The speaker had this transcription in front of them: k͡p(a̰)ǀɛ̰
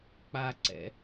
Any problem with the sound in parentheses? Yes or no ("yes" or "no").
yes